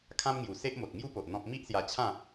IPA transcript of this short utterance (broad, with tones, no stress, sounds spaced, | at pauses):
kʰ ã˦ m ŋ j u˨˩ s e˦ ʔ m o˨ t̚ ŋ j u˦ p o˨ ʔ n̪ ɔ̃˦ p̚ m i˦ ʔ s j a˧ t͡ɕʰ ã˥˧